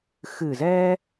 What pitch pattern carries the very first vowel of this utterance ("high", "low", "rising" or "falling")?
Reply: low